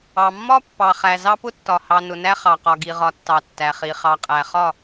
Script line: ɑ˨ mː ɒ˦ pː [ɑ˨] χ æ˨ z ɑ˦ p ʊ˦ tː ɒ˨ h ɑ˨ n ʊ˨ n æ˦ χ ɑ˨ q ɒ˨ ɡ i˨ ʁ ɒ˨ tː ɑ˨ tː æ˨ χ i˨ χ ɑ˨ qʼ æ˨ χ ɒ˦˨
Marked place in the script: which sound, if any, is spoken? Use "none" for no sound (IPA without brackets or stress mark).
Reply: ɑ˨